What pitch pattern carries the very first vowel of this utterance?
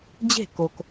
falling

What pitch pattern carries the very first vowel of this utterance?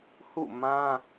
falling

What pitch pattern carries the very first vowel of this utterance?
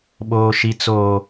high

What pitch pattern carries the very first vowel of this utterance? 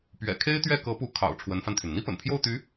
low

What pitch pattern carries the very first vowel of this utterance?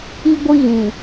high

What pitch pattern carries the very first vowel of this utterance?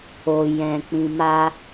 low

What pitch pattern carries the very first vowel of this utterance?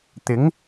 rising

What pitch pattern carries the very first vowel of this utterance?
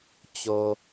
low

